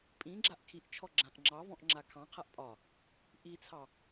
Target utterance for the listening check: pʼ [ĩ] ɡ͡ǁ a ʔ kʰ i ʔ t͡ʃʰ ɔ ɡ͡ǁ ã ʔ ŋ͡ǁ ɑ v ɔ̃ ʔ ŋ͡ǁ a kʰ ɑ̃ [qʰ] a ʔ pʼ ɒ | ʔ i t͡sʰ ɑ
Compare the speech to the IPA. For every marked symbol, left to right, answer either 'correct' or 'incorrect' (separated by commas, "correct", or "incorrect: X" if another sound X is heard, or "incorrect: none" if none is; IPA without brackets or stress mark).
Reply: correct, correct